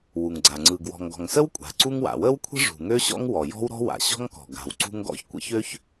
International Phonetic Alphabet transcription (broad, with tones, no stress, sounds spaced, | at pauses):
w u˩ ŋ ɡ͡ǀ a˩ ŋ͡ǀ ɯ˩ ɡ w ɔ̤˩ ŋ ɡ ɔ̤˩ ŋ s ə˥ w kʷʼ a̤˩ ǀ u˥ ŋ w a̰˩ w ə˥ w kʷʰ ə̤˥ ʐ ṳ˩ ŋ ø˥ ɕ ɔ̰˥ ŋ w ɔ˩ j ɔ̤˥ w ɾ ɔ̤˥ w a̰˩ ɕ ɔ̤˥ ŋ k ɔ̤˩ ɡ a̤˩ w ǀ ṳ˥ ŋ ɡ ɔ̰˥ ç kʷ ə̰˥ ç ø˥ ç